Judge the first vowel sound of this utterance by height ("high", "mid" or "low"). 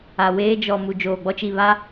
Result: low